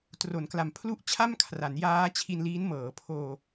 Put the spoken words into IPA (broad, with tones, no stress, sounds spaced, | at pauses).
t r o˩˦ n k l a˩˦ m pʰ l u˥˩ ʔ t͡ɕʰ a˥˩ m kʰ r a˩˦ n j aː˦˥ t͡ɕʰ i˧ n l iː˦˥ n m ɤː˩˦ pʰ oː˧